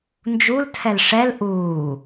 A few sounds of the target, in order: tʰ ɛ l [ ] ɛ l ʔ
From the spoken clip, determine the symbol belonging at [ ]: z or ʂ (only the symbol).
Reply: ʂ